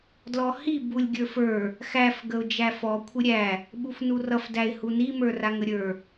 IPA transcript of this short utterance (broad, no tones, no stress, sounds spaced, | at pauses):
d l ɔ h i b u lʲ ɡʲ ə˞ f ə˞ | x æ f ɡ ə ʊ̯ d͡ʒ æ f ɔ kʷʰ ɪ ɾʲ æ | ɓ u f n u r ʌ f d æ ɪ̯ h u n i m ə˞ r a ŋ ə ɾʲ ə˞